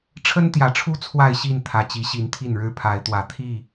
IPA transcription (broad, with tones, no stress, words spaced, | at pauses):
ʈ͡ʂʰə˦nt̪jä˨˩ʈ͡ʂʰu˦ t͡sʰwa˥˨ɪ̯ɕi˥˨n t̪ʰä˨˩t͡ɕi˨˦ɕi˨˦n t̪ʰi˥˨nɻɻ̩˦ pʰa˨˦ɪ̯t̪wä˨˦ t̪ʰi˥˨